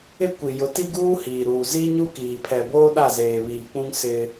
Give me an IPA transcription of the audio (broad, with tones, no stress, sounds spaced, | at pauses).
ɪ˦ kʷ i˨ j ʊ˨˦ t i˦ ɡ uː˦ h iː˨ ɾ uː˨ z i˦ ɲ u˦ k iː˨ pʰ ɛ˨ b oː˦ ɗ a˦˨ z eː˨ β iː˨ k͡p ũ˦ ŋ s ɪ˦